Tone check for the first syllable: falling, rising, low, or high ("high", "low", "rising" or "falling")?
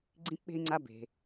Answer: high